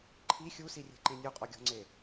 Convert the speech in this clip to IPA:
ǃʰ i xʲ u s i rʲ e̤ ǃ ẽ nʲ u qʼ ɔ ɡʲ ɔ̤ ŋ͡ǀ e

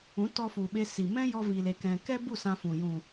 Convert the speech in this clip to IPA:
ũ˨˦ t ɔ˧ f u˨ ɓ e˧ s i˨ m ɛ̃˦ j ɔ˦ v i˧ l e˧ k ɛ̃˧ k ɛ˦ b u˦˨ s ã˧ f ũ˨ j ũ˨

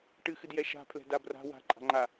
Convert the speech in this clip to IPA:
ʈ ɨ x ɨ d j ɛ ʃ a̤ pʰ l ɛ̤ d a b r a̤ w a̤ ǃʼ a̤ ŋ͡ǃ a

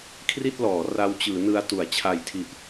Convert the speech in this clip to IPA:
kʰ r i˥˩ t̚ l ɔː˩˦ r a˦˥ w t͡ɕ ɯː˩˦ n ɯ˧ a̯ t u˩˦ a̯ t͡ɕʰ a˨˩ j tʰ i˨˩ ʔ

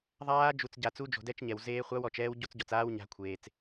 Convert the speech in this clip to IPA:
ðˤ aː˦˥ d͡ʒ u˨ t͡s ɟ a˨ t͡s u˦˥ d͡ʒ o̤˨ d ɛ˦˥ t͡ʃ ɲ ɛ˨ w z eː˦˥ χʷ a˦˥ w ɔ˨ t͡ʃ ɛː˦˥ w ɟ o˦˥ t͡s ɟ ɔ˨ t͡s aː˦˥ w ɲ a̤˦˥ kʷʰ eː˨ t͡s

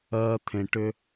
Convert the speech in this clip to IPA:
ɜː˧ t̪ʰ ẽ˨ ʈ ʏ˧

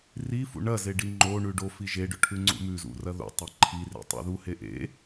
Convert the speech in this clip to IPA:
r i f ṵ ɳ ɐ z e ɖ i ŋ͡ǃ o ɳ ʉ ɖ o f i ʒ e ɖ ɵ ʈʰ ʉ ŋ͡ǀ ṵ m ʉ z ṵ r ɐ ð ṵ tˤ e ǃʰ i r ḛ tˤ ḛ ð u h e ʔ ḛ

